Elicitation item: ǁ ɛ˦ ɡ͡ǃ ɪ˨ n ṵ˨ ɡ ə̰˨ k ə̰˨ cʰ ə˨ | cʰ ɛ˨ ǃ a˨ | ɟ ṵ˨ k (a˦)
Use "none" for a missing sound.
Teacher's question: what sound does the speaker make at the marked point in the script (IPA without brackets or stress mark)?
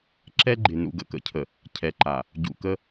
ə˦